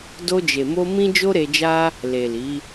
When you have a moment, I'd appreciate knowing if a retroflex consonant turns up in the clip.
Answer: no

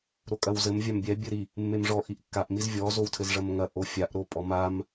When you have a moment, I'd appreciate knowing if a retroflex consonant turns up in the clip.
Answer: yes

